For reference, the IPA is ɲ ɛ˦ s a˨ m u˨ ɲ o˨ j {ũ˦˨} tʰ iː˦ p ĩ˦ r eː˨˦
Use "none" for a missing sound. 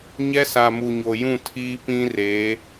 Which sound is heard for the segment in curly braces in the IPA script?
ũ˦˨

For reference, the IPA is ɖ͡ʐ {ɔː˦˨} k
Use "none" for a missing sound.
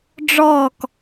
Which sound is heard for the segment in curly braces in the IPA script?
ɔː˦˨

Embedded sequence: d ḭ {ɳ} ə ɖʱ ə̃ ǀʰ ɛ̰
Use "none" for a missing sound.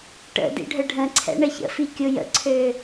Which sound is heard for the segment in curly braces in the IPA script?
ɖʱ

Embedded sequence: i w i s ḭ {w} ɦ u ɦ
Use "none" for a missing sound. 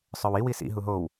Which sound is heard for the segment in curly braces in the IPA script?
none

